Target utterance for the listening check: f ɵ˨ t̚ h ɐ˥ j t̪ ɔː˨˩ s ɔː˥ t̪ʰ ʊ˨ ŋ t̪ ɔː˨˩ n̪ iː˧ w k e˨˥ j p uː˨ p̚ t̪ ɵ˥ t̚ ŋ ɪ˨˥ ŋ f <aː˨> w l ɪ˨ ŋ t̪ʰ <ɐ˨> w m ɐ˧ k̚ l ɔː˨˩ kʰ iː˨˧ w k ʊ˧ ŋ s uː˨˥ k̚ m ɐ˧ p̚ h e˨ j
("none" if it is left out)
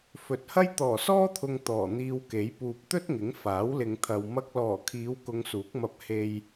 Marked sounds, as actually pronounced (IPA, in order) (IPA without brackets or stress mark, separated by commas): aː˨˥, ɐ˨